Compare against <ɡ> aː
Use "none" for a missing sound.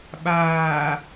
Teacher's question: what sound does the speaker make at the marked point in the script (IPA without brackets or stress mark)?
ɓ